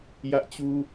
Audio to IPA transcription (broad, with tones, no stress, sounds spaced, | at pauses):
j ä˦ ʔ t͡ɕ u˦